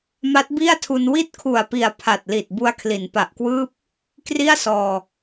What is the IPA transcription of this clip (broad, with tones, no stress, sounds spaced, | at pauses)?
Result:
m a˦˥ t̚ b i˥˩ a̯ tʰ u˧ n w i˥˩ t̚ kʰ u˨˩ a̯ p i˨˩ a̯ pʰ a˨˩ t̚ l i˨˩ t̚ b u˧ a̯ kʰ l i˩˦ n p a˨˩ ʔ k w ɯː˥˩ p̚ | k r i˥˩ a̯ s ɔː˧